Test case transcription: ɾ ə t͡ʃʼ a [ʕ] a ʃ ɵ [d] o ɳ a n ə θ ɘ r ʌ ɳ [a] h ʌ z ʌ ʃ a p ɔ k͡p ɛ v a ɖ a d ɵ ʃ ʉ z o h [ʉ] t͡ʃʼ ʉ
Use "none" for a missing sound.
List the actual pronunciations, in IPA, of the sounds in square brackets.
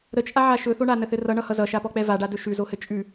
ʕ, θ, ʌ, ɘ

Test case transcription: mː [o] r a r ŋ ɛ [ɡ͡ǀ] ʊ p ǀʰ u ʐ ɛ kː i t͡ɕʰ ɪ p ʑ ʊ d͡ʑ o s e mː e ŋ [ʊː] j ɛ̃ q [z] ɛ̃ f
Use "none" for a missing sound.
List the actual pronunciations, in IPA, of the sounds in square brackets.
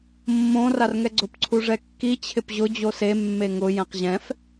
õ, ɡ͡ǀ, ʊ, ʑ

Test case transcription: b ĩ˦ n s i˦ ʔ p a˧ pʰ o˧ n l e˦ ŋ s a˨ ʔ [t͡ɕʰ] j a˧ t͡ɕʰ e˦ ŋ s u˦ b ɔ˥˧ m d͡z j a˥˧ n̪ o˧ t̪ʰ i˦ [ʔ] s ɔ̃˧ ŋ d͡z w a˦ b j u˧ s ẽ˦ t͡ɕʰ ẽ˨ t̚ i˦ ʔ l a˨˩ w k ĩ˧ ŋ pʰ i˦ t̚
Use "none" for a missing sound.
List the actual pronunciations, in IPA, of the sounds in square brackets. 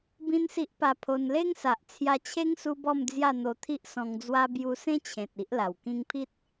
t͡sʰ, ʔ

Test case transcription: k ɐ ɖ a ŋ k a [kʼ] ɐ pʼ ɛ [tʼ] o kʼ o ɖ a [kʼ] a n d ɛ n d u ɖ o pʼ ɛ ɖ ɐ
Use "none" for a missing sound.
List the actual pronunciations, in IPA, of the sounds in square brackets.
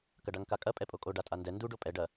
kʼ, pʼ, tʼ

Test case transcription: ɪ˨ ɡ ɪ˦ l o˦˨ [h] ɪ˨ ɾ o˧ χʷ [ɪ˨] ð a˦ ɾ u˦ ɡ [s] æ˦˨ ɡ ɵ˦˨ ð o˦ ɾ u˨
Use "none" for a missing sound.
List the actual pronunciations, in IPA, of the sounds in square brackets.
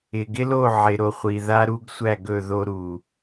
ʕ, i˨, sʷ

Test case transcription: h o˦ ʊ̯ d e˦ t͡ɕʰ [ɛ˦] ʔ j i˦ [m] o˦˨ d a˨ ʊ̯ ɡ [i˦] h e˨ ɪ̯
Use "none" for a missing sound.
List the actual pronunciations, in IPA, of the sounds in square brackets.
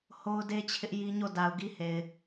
ɪ˦, ɲ, i˦

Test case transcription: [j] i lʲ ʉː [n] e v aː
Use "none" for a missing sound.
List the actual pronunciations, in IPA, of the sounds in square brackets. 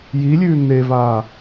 j, n

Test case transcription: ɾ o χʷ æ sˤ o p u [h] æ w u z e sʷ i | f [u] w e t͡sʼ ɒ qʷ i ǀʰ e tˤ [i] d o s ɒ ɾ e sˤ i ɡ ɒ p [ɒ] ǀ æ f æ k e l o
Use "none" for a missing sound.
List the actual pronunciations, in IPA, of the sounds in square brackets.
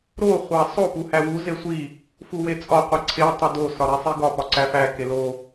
h, u, i, ɒ

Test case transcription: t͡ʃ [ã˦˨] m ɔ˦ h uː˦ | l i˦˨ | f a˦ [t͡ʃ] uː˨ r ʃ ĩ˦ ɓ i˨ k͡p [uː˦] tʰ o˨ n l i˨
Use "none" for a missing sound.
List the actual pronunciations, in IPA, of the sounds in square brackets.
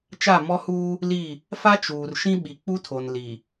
a˦˨, t͡ʃ, u˦

